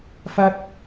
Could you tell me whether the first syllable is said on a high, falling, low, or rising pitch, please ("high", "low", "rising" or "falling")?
high